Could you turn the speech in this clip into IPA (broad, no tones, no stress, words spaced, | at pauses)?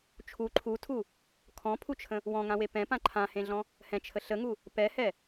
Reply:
t͡ʃʰu ǃʰutʰu | kʰɔ̃pʰut͡ʃʰə̃ | wɔ̃ŋãwe pɛ̃ pãǃʰãhẽɮɔ̃ | hɛ̃t͡ʃʰə ɬəŋu | pɛhɛ